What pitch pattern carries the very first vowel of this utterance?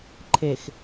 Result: low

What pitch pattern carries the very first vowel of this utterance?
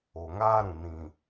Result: low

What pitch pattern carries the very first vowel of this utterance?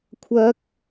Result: high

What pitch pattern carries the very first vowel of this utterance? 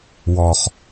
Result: low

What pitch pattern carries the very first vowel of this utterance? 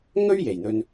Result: high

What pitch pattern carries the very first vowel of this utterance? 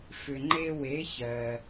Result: low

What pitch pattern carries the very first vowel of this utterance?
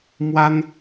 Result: high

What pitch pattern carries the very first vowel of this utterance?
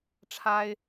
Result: high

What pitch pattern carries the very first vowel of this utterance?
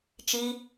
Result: high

